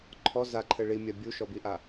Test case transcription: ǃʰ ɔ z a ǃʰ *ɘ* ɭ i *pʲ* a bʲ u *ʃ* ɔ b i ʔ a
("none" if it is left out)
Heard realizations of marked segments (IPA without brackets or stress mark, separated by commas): ɘ, mʲ, ʃ